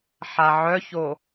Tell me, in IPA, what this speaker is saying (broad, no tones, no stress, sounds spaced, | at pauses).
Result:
ħ a ʕ œ ç o